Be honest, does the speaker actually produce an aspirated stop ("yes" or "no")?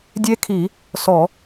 yes